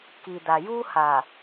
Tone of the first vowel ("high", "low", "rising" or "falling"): low